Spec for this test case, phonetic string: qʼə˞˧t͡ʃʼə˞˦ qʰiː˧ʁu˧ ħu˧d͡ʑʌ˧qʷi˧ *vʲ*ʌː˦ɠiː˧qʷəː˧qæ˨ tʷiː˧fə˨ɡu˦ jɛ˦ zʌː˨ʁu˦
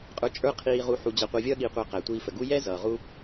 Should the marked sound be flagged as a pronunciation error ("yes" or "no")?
no